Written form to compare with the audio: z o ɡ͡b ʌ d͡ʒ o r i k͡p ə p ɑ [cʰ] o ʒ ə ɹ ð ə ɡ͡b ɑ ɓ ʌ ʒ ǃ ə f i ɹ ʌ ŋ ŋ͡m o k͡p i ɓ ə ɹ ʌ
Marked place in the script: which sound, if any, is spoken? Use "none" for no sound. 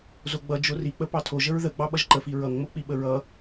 tʰ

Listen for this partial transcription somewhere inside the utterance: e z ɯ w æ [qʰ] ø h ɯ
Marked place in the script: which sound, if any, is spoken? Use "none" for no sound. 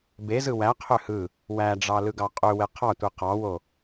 qʰ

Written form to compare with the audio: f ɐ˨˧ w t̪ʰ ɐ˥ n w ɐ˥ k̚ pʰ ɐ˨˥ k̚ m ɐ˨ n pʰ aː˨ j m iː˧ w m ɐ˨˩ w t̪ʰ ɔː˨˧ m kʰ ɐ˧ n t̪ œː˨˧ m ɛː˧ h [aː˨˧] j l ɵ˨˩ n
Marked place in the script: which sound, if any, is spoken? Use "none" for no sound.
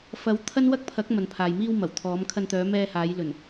aː˨˧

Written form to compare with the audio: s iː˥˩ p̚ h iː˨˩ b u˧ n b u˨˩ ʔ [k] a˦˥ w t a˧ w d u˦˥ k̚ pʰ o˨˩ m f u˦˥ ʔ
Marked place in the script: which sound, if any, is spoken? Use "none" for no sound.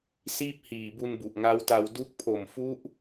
ŋ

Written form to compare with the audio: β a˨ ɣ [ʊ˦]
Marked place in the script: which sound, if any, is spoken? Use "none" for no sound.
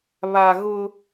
ʊ˦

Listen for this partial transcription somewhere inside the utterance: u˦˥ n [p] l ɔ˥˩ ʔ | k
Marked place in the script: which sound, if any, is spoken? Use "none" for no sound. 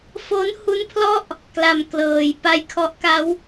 pʰ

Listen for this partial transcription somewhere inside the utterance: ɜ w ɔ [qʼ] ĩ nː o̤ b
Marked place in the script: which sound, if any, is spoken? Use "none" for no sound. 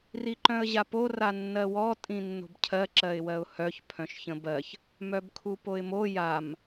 tʼ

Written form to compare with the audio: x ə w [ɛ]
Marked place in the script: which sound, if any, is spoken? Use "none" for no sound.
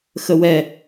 ɛ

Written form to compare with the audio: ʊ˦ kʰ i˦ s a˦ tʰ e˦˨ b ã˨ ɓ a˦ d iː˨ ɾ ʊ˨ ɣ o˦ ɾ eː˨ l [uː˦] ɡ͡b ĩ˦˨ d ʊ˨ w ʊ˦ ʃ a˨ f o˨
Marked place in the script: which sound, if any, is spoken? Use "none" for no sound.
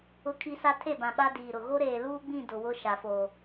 uː˦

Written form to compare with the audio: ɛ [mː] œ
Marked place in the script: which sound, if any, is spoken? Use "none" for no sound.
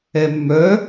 mː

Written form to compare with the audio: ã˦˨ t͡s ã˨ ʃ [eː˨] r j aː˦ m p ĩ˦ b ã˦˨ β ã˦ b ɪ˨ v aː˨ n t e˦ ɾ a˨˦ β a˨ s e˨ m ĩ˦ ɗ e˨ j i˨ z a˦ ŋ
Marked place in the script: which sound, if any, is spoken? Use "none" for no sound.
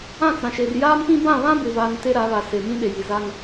e˨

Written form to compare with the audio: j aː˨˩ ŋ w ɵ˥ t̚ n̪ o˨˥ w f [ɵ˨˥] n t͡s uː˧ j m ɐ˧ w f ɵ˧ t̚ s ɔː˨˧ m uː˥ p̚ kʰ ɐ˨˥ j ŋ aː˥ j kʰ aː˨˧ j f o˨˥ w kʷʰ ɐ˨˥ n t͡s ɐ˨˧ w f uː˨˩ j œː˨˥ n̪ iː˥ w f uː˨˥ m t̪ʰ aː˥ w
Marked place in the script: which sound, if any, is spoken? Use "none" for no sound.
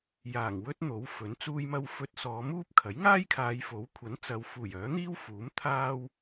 ɵ˨˥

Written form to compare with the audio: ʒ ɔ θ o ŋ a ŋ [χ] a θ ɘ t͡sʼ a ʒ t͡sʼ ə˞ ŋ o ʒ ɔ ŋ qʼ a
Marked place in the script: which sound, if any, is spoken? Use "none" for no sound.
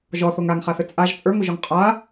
χ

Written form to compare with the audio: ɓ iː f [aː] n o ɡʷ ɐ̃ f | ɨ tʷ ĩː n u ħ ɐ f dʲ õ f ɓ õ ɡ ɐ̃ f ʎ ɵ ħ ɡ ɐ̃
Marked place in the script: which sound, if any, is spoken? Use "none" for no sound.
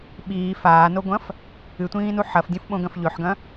aː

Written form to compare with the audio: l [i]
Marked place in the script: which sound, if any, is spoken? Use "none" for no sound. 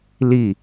i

